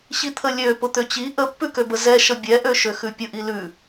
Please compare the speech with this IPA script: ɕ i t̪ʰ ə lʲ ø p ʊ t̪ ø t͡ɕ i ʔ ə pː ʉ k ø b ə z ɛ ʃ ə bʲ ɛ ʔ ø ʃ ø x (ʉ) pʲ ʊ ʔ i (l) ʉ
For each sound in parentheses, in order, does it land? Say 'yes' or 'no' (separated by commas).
yes, yes